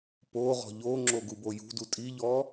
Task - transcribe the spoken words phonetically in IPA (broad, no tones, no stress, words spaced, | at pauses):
poʁɔ̤ ʎoŋ͡ǁo ɡubojṳdu tʼiʎɔ